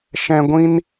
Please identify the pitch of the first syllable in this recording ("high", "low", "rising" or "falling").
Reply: low